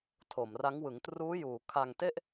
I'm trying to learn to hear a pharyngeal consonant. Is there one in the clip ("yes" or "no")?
no